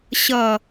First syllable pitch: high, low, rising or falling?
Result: low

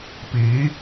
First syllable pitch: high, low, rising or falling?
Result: rising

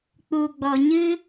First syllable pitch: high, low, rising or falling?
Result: low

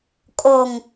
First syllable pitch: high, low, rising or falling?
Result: low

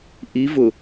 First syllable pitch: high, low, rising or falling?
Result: rising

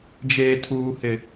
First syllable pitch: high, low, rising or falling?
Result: low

